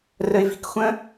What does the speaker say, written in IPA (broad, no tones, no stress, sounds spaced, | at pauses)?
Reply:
r ə ɪ̯ v i̤ k xʷ ə̃